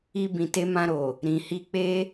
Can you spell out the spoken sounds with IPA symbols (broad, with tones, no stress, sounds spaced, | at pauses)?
i˧ b ĩ˨ t e˧ m ã˧ ɾ o˨ | ɾ ĩ˨ h i˧ k͡p e˦